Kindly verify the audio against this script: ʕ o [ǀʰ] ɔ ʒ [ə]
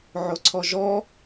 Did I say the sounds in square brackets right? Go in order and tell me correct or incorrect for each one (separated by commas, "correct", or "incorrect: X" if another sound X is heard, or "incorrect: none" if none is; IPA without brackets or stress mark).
correct, incorrect: ɔ